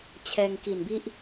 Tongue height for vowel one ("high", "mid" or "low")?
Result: mid